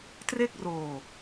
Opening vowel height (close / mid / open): mid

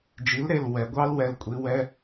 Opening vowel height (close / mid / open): close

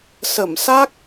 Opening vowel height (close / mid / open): mid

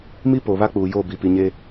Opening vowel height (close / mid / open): close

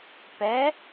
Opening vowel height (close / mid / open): mid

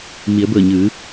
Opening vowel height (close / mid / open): close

